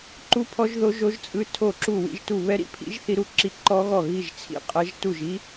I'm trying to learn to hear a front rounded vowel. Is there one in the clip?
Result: no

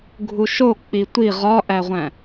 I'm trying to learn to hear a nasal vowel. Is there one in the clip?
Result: yes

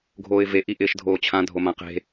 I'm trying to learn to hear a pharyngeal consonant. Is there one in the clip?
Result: no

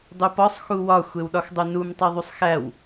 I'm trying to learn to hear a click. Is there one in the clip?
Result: no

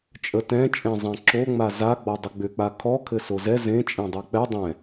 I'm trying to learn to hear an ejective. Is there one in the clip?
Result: yes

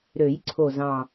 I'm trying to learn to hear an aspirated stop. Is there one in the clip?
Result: yes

